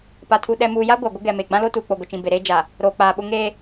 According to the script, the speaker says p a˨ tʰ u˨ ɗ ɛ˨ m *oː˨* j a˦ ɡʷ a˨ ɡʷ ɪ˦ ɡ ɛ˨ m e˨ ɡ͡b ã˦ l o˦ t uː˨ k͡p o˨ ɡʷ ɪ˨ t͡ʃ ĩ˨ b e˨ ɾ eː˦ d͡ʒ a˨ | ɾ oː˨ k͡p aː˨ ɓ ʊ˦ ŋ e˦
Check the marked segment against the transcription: incorrect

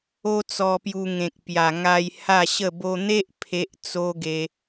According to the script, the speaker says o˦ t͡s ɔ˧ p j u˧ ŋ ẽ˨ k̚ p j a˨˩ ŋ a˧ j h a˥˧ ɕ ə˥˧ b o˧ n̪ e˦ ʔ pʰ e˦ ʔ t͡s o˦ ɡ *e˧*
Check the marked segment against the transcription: correct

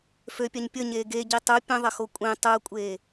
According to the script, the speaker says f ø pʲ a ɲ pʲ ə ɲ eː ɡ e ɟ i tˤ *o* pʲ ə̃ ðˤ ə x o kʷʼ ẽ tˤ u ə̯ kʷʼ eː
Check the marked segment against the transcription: incorrect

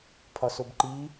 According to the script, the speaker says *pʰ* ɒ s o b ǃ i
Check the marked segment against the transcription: correct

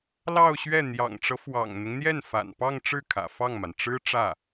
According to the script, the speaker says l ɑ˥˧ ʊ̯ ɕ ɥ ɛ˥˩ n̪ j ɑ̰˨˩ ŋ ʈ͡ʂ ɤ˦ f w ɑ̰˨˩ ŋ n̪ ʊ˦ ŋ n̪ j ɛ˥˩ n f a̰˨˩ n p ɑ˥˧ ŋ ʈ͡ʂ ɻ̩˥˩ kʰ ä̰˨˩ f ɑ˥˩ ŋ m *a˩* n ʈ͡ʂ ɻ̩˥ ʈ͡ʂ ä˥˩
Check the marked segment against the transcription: correct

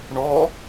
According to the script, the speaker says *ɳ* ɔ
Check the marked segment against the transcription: correct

